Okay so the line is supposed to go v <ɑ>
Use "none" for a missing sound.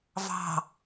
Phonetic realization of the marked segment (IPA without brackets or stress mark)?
ɑ̤